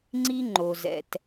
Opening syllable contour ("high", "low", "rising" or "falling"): high